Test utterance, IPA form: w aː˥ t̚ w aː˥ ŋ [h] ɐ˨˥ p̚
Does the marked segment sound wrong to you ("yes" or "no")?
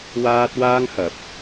no